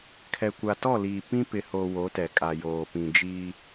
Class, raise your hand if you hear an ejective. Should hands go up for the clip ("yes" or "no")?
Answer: yes